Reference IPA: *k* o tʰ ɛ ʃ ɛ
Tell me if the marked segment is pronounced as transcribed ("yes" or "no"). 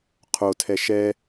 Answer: no